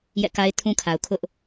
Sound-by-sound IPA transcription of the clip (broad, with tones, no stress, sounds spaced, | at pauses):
j ɛ̰˦˨ k a˦ ɪ̯ tʰ ũ˦ kʰ a˨ ʊ̯ kʰ ʊ˦ ʔ